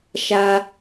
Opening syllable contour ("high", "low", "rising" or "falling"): high